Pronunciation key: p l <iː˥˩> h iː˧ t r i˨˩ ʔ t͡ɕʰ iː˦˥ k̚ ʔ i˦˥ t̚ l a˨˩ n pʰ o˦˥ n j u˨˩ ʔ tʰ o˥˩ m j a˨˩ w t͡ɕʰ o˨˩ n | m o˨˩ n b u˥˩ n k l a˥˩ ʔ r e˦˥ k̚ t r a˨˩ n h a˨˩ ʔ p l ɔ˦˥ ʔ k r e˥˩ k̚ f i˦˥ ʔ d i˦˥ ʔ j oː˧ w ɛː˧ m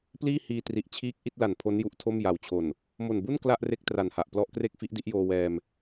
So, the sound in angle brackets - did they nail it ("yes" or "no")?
yes